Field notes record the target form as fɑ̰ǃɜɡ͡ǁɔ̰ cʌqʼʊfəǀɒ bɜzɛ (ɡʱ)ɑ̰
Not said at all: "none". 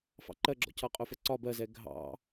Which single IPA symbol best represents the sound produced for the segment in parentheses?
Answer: ɡʱ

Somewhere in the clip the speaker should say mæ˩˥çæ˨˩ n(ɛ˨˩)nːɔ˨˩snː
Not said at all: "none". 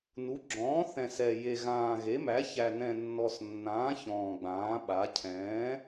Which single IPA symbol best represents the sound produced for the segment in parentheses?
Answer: ɛ̃˨˩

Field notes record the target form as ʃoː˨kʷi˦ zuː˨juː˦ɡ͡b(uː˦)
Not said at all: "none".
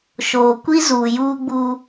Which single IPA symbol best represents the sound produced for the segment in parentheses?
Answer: uː˦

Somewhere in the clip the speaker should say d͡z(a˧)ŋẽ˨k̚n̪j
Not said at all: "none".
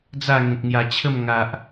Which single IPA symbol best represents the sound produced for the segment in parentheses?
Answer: a˥˧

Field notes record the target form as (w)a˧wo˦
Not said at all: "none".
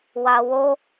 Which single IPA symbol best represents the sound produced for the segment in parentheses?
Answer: w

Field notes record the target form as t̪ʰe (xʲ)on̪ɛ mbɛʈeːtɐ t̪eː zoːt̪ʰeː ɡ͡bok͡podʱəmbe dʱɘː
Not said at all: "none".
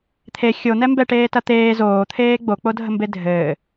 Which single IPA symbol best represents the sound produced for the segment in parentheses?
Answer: xʲ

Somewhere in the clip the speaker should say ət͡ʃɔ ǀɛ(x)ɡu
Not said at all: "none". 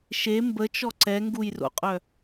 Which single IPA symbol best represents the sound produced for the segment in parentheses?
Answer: ŋ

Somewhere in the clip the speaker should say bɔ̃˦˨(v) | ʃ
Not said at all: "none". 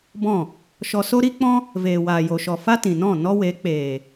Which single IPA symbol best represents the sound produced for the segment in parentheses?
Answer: none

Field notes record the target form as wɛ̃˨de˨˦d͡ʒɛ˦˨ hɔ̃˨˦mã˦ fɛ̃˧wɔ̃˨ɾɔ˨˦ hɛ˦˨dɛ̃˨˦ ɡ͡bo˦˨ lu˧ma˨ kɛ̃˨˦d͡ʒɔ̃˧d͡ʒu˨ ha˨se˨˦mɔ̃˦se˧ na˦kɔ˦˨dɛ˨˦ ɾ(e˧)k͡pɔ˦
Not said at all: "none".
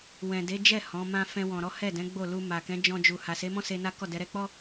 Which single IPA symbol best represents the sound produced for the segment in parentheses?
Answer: ɛ˧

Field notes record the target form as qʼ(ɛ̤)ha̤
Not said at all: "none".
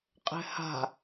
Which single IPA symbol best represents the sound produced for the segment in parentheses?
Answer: ɛ̤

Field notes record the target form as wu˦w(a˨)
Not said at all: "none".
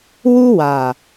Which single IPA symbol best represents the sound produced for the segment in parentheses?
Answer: a˨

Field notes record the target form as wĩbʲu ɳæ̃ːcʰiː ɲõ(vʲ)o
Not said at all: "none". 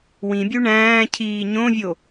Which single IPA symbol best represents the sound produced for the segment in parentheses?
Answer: vʲ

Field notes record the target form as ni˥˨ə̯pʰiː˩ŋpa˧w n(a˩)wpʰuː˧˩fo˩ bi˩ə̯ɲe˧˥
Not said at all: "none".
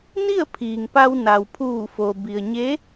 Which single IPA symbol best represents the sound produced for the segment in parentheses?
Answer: a˩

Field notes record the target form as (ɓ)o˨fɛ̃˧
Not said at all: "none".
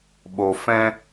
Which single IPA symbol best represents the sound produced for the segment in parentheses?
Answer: ɓ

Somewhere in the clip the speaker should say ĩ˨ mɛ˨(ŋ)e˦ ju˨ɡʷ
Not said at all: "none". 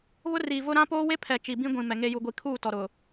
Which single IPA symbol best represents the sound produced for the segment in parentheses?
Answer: ŋ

